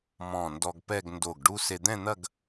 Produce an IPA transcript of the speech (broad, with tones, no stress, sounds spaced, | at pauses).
m ɔ̃˧˩ n d ɔ˧ ɡ p ɛ˥˧ ɡ n d o˧˩ ɡ ɖ u˥ s e˧ d̪ ɛ̃˥˧ n̪ ɐ˥˧ ɡ